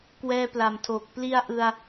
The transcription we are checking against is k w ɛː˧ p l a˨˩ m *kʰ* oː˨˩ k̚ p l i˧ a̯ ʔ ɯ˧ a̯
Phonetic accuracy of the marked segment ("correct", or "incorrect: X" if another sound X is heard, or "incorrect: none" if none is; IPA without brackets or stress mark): incorrect: tʰ